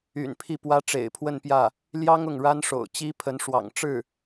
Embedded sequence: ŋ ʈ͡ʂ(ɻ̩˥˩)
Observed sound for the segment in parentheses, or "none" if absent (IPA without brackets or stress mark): ɻ̩˥˩